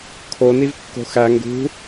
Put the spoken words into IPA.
kʰoniv kːo̤xæ ŋɡṳ

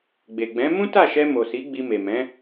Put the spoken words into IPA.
ɡ͡be˨ɡ͡bɛ̃˨˦ mũ˦ta˦˨ʃɛ˧mo˨ si˨˦ɡ͡bi˧me˨mɛ̃˨˦

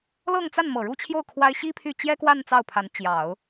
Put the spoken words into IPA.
lɤ˥˧ŋt͡sa˥˩n mɤ˨˩ɻu˥˧t͡ɕʰjo˥˩ʊ̯ kʰwa˥ɪ̯ ɕi˥pʰy˥˩ t͡ɕjɛ˥kwa˥˧n t͡sɑ˥˩ʊ̯pʰa˧˥n t͡ɕjɑ˨˩˦ʊ̯

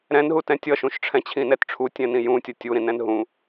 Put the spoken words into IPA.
ɾɛ̃nɦutɛ̃ tʲʌʃũʃʈ͡ʂʰɛ̃ t͡ɕʰĩnɛtʈ͡ʂʰu tʲɛ̃nĩjũtʲʌ tʲu ɾĩnɛ̃nɦũ

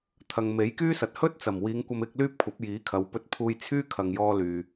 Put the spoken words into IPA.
t̪ʰɐ˨ŋme˨˥jkyː˥sɐ˨˥t̚ hɵ˥t̚t͡sɐ˨˩mwiː˨˧ŋ kʷɐ˧mɪ˧k̚ lyː˥p̚kʷʰɐ˨˥p̚jiː˨˥kʰɐ˨˧w pɵ˧t̚pʰuː˧j t͡sʰyː˥ kʰɐ˨ŋjɔː˧ lyː˨

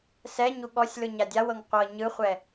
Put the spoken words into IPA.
sɛɲu ɠɔsʲlɯ ɲadʲawɤŋ qʷɤ ɲɯχʷɛ

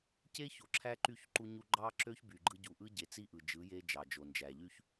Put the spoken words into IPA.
ce˦ço˨ǁʰæ˦ǃy˦˨ç ǃu˦ɲu˦ ɡ͡ǃɑ˦ǁø˦ç by˨ɡ͡ǃɯ˦ ɟu˨ʔɯ˦ɟe˨t͡si˦ ʔɯ˨d͡ʒɯ˨˦je˦ d͡ʒɑ˨d͡ʒo˨nd͡ʒæ˨ ʎy˦ç

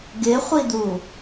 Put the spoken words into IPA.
ɡɪχʷid̪u

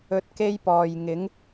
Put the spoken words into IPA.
ɵ˧t̚ke˥jpɔː˨j ŋɪ˨˥ŋ

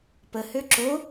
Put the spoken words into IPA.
pəhø ǁo

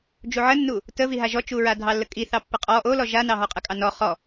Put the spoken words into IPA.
d͡ʒuʕənːu | təviɦa ʒɔt͡ʃuɹa dʱɑlːəkʼi θɑpːəqʼɔ ʔolɔ ʒanɑɦɔqʼə kʼɑnɔ χɔ

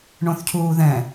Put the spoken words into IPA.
ɳõθcʰuːðɛ̃

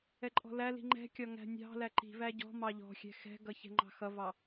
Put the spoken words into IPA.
ɛǃʼɔ̤læli̤ ŋ͡ǃɛ̤kʲɒ ŋæ̤nʲɑ̤læ ǃi̤væ ɟɔ̤ mɑʎɔ̤xʲɛ̤ xɛ̤ɡʌ çɛ̤ŋ͡ǃɑ̤xʌvɑ

